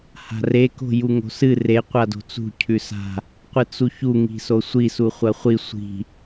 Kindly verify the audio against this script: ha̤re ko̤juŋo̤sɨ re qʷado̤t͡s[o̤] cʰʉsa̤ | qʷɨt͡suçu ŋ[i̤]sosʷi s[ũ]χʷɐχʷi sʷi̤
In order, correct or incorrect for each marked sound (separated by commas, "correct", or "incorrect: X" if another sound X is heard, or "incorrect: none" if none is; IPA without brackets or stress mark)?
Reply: incorrect: ṳ, correct, incorrect: u